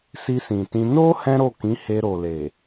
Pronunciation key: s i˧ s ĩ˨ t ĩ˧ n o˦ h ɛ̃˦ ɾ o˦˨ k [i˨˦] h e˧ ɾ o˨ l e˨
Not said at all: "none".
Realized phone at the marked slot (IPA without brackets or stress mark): ĩ˨˦